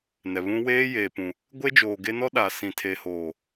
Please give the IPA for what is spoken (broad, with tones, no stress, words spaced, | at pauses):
nɛ˨βũ˦ weː˦ jeː˨pũ˨ | ɡʷe˦d͡ʒoː˨ ɡe˦ nɔ˦ɗa˨sĩ˨ tʰeː˨hoː˨